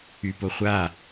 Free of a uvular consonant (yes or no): no